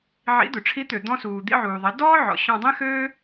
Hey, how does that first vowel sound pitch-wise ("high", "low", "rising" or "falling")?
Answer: rising